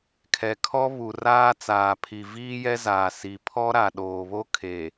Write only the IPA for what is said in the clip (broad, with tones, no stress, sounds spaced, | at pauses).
kʰ ɛ˨ kʰ ɔ˦ β u˨ r aː˦ t͡s aː˨ pʰ i˨ v iː˦ j ɛ˦ z aː˨ s i˨ pʰ ɔ˦ ɾ a˨ ɗ oː˨ β o˦ kʰ e˨